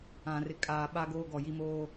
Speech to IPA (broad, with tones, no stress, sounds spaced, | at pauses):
ã˨ r ɪ˨˦ kʼ aː˨ ɓ a˦ ɡ oː˦ ɡ ɔ˦˨ j i˦ m oː˦